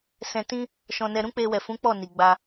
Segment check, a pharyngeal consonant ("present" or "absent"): absent